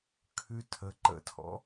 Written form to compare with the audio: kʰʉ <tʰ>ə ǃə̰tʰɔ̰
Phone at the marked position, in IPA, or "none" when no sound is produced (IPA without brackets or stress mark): tʰ